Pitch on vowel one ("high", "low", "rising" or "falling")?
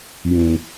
low